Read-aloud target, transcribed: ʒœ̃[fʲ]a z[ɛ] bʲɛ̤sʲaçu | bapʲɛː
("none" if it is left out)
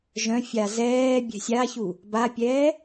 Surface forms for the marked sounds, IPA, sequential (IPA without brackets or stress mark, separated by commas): fʲ, ɛː